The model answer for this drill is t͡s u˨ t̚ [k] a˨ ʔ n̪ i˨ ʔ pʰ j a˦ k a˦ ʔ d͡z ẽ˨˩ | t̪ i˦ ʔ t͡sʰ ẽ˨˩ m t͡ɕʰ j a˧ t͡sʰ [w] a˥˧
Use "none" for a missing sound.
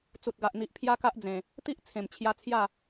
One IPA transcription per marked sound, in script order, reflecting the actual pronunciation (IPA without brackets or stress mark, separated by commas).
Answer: ɡ, j